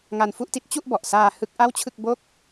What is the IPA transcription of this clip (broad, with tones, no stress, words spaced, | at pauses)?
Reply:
ŋa˧nfu˥˩ʔti˦˥t̚ t͡ɕu˥˩ʔbɔ˨˩ʔsaː˧ hɯ˦˥k̚ʔa˥˩wt͡ɕʰɯ˥˩k̚ bo˥˩k̚